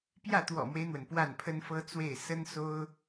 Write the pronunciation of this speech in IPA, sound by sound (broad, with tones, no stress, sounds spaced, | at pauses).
p j ä˥˩ t̪ w ɔ̰˨˩ m w e˦ ɪ̯ n̪ w ə˩ n p w a˥˩ n pʰ ə˥ n f ɤ˥ t͡s w e˥˩ ɪ̯ s ə˥ n s o˥ ʊ̯